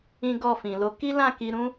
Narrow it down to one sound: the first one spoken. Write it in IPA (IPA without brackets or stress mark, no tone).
ĩ